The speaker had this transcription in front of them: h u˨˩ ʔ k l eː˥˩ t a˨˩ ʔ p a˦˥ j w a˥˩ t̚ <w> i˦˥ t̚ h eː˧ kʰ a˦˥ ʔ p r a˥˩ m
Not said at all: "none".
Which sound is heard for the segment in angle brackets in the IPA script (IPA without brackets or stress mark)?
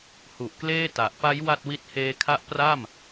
w